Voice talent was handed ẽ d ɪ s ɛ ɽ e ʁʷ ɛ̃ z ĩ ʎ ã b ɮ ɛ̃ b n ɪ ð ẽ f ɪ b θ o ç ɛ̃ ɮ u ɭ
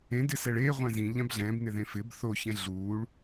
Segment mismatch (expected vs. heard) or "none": ɽ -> ɭ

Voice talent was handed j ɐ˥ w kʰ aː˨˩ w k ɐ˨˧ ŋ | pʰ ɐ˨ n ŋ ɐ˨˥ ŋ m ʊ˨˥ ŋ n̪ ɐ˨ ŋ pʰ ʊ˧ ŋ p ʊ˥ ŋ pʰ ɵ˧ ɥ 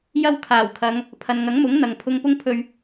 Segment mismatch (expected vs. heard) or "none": k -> kʰ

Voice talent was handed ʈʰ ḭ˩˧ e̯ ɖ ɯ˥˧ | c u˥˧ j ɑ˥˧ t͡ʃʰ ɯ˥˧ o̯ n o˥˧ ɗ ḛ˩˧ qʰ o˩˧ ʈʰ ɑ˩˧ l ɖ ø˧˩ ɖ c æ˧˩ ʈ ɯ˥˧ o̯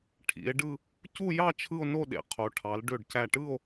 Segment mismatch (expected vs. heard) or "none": none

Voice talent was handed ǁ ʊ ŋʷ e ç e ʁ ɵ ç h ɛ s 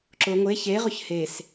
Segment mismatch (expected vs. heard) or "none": ɛ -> e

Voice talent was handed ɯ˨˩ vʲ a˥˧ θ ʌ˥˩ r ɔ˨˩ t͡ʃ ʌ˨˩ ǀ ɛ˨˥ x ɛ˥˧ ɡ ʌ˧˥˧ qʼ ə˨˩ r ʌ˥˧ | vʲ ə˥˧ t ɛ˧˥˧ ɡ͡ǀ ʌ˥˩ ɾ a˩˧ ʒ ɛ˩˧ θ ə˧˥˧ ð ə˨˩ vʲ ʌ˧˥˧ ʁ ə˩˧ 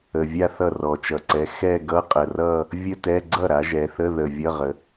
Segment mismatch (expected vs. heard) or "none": ɯ˨˩ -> ə˨˩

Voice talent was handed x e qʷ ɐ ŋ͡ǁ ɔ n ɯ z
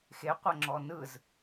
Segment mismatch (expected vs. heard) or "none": none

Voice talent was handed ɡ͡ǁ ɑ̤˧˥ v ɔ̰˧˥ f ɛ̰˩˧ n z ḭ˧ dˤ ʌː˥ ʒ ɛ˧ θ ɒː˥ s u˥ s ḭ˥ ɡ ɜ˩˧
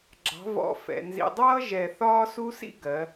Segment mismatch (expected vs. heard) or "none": none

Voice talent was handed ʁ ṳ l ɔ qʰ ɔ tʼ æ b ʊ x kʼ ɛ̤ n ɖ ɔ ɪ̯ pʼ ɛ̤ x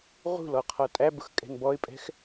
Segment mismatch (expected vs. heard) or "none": ɖ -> b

